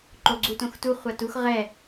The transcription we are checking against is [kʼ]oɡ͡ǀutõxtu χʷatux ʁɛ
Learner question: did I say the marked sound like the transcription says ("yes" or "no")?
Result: no